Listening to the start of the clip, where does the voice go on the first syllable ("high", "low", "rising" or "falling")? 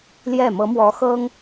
falling